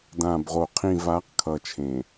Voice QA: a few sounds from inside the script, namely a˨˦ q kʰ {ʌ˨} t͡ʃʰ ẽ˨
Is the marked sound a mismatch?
no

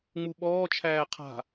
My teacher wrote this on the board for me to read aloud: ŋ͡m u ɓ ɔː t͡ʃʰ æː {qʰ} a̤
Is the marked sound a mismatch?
no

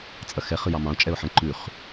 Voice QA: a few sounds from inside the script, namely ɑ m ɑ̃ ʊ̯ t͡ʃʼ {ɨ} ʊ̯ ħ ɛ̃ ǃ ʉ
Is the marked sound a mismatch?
yes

